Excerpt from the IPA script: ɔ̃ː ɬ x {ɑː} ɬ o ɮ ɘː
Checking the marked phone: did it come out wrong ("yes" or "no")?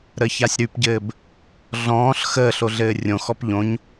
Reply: yes